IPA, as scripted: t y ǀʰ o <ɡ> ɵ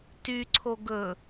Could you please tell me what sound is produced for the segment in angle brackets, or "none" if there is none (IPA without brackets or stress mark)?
ɡ